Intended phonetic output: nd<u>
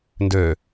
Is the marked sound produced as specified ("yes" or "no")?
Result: no